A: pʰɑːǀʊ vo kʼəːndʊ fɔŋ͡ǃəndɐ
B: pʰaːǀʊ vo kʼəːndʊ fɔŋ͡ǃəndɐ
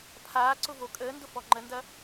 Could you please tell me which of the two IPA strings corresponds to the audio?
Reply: B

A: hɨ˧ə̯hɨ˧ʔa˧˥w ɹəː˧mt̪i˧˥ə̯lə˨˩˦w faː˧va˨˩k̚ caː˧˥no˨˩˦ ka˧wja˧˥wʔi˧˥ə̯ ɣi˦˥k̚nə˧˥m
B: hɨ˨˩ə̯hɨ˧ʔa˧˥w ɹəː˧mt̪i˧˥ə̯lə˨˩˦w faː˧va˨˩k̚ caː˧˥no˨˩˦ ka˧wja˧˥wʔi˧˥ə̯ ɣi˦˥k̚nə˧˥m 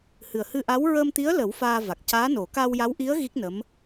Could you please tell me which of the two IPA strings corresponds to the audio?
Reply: B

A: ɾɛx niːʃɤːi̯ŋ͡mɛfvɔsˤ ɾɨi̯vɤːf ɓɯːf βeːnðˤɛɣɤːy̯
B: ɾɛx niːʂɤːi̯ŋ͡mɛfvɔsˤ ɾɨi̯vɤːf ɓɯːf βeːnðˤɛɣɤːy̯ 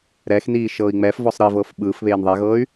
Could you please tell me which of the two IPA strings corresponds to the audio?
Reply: A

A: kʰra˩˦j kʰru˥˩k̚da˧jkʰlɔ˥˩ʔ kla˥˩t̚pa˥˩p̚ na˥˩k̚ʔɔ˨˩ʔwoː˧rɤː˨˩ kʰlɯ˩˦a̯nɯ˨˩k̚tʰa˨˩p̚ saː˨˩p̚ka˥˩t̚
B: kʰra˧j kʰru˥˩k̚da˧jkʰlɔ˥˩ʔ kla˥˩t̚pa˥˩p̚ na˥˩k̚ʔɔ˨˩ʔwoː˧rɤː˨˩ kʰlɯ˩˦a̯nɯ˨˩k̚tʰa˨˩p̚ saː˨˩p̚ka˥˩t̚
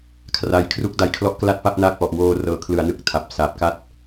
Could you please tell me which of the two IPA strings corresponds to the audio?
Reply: B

